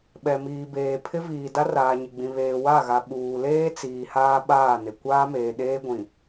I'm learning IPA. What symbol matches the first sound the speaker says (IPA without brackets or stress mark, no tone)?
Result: ɓ